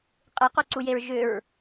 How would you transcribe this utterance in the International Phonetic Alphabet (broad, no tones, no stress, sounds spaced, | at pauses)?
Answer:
qʼ ɨ q u ǀ u j e ɹ ʒ ʏ ɹ